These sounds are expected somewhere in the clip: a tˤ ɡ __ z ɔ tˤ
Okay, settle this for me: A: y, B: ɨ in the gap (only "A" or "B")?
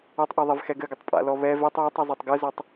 B